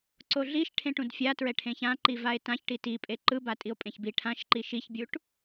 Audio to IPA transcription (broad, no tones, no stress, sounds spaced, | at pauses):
ǀ o ɮ i ʃ ʈʰ ẽ ʈ ũ d fʲ a t ɹ ɛ ʈʰ ẽ ç ã ǃ i v a e̯ t ã ç ʈ i t i pʼ e ǃ ɯ b a tʼ i o̯ pʼ ẽ ç b i ʈʰ ã ʃ ǃ i ʃ i ç bʲ u ʈ